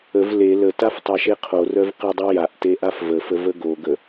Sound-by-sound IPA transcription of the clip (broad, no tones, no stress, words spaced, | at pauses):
əv le lətaf tˤaʃeqʰorœv qedˤojaʔte ʔafvəfə vəɡoɡə